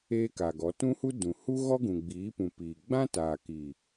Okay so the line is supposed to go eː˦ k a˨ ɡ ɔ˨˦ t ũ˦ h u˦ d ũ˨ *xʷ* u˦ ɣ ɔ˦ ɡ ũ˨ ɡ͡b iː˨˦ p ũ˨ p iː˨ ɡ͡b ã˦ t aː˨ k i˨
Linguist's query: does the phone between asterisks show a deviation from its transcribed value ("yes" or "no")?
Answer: yes